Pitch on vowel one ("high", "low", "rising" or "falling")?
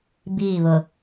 falling